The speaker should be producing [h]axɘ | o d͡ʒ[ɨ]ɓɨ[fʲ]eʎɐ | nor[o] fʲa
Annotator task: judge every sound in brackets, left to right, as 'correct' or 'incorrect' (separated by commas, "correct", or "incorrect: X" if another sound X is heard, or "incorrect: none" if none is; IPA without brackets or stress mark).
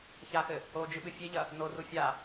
incorrect: ç, correct, correct, incorrect: u